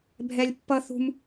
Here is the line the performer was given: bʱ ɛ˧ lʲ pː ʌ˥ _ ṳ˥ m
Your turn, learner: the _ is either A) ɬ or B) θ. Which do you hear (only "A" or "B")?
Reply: B